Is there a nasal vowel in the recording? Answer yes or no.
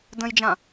yes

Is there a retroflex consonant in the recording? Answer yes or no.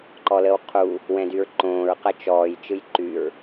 no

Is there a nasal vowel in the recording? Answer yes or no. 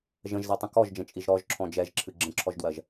yes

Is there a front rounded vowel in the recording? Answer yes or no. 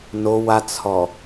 no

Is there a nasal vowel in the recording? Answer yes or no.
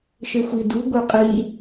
no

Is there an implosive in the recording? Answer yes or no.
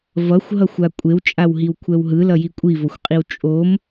no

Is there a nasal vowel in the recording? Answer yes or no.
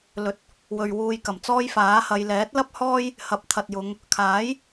no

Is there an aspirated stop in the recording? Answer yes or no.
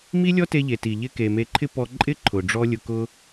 yes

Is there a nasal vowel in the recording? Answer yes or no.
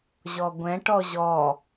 yes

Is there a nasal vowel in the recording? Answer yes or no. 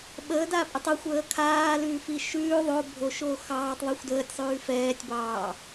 no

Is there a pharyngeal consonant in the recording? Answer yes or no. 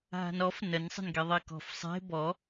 no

